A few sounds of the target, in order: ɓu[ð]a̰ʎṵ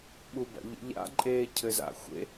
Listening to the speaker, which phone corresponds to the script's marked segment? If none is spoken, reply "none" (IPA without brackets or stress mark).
b